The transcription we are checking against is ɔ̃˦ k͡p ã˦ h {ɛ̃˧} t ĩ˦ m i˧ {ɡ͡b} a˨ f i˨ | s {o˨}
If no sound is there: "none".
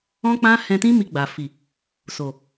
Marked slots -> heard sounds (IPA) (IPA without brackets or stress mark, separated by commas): ɛ̃˧, ɡ͡b, o˨